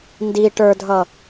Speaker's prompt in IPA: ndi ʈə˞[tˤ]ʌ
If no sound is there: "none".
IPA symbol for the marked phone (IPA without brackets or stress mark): dʱ